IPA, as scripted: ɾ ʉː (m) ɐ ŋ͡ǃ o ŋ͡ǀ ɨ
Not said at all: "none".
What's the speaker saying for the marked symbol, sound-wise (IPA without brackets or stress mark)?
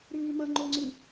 m